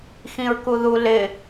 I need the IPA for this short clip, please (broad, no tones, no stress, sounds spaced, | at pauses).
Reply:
x ĩ ɹ k u ð u l ɪ